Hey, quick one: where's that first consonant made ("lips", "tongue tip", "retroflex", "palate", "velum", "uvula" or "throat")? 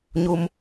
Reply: palate